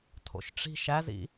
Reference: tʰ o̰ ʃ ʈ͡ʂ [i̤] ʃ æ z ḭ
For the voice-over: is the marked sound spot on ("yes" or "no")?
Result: yes